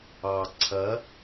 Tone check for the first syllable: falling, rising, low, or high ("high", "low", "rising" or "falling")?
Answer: low